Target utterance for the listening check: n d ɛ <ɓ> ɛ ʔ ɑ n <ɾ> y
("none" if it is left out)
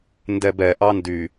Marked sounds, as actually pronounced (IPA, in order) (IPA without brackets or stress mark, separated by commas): b, d